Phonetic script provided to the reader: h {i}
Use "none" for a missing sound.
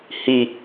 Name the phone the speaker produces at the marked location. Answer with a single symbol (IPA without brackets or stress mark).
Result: i